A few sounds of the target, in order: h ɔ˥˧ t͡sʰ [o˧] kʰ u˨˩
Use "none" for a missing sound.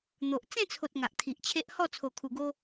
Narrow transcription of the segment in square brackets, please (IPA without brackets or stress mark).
o˨˩